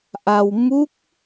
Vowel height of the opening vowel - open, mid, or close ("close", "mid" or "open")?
open